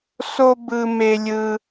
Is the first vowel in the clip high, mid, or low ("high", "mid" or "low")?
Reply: mid